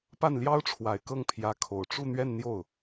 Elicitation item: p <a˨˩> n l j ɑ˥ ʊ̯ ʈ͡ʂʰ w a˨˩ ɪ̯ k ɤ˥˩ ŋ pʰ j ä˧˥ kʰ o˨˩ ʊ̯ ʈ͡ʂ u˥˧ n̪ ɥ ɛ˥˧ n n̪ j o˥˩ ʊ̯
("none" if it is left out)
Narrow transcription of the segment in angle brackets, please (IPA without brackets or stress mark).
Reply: a˥˩